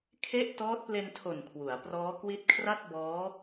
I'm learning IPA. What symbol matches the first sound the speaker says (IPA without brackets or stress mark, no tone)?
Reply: kʰ